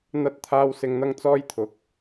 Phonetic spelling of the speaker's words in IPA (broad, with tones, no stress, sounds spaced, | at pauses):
n̪ ɐ˥ t̚ t̪ʰ aː˥ w s ɪ˧ ŋ n̪ ɐ˥ ŋ t͡s ɔː˥ j t̪ʰ ʊ˨ k̚